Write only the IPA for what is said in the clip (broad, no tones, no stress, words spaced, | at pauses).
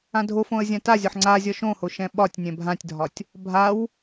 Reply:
ãdʱofõə̯ zʲãtazʲɒħ ŋ͡ǀazʲɒ ʃõho ʃɛ̃ɓɒtʲnʲɛ̃ bʱãtʲdʱɒtʲ | bʱaw